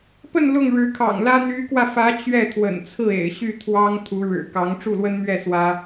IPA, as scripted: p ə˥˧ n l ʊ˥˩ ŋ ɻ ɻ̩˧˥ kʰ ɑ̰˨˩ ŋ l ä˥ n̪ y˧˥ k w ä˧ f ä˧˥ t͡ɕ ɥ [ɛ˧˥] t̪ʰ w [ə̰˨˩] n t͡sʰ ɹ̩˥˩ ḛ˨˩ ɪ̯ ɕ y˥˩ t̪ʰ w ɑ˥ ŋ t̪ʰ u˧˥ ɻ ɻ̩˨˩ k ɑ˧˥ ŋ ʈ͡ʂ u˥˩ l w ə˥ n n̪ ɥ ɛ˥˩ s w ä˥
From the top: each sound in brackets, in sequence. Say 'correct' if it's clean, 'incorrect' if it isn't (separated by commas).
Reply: incorrect, correct